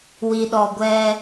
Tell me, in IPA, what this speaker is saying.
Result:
w i˨ ɗ ɔ˨ ɡʷ ɛ˦

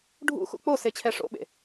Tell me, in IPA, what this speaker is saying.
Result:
ɖʱ ṵ x ṵ k͡p o s e t͡ɕʰ ɛ ʂ o̰ ɓ ḛ

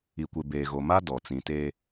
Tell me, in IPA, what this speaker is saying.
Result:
i˨ kʷ e˨ b eː˨ ɣ o˨ m a˦ d ɔ˨ t͡s ĩ˨ t e˦

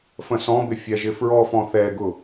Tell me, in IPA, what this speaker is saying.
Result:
f ə̃ s ɔ̃ b ɪ fʲ ɛ ʒ ɪ f ɹ ɔ f ɔ̃ θ ɛ ɡ ʊ

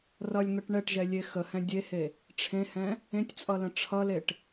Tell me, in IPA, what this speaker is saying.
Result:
r ʌ lʲ n̪ ʌ ʈ ɳ ɛ ʈ ʒ ɛ lʲ e x ə h ɛ̃ dʲ e h e | ʈ͡ʂʰ ẽ h ɛ̃ | ẽ tʲ t͡sʼ ʌ l ə̃ ʈ͡ʂʰ ʌ l e ʈ

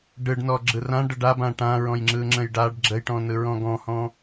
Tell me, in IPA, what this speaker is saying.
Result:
ɖ ɯ ɖ n ɔ ɡ͡ǁ ɯ r ã ɖ ə ɖ a b ã ʈ ã ɹ ɔ̃ j ŋ͡ǁ ɯ ŋ͡ǁ ə̃ j ɖ a ɖ ɡ͡ǁ ə j ʈ ɔ̃ n ɯ ɹ ɔ̃ ɡ ɔ̃ h ɔ̃

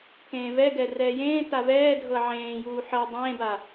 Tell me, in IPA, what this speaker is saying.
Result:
k ẽː v ɛ ɡ ɛ r ɛː j ẽː t a v ɛː dʱ ɤ ʕ ẽː j uː ħ ɤ dˤ ẽː b a

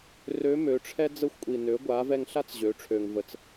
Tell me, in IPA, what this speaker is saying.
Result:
r ø˧˥ m ø˩˧ ʈ͡ʂʰ ɛ˥ d͡z ə˧ xʷ kʷʼ i˩ n ø˩˧ ɡʷ a˩˧ v ɛ˧ ŋ ɬ a˥ t͡s ʑ ø˩˧ ʈ͡ʂʰ ø˩ ŋ v ə˩ t͡s

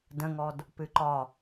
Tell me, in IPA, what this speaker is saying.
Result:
d ə̃ ŋ ɔ d | p ɨ ǃ ɒ

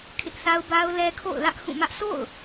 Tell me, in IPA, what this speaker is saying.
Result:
kʰ ɪ˦ ʔ θ a˦ ʊ̯ b a˦ ʊ̯ l ɛ˦ kʰ o̰˦˨ ʊ̯ l ä˦ ʔ h ũ˦˨ m ä˦ ʔ s o̰˦˨ ʊ̯

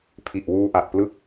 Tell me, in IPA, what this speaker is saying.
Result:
pʰ i˨˩ ʔ w uː˧ ʔ a˨˩ t̚ p l ɯ˥˩ k̚

